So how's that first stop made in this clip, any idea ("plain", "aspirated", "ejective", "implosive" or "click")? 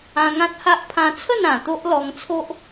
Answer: plain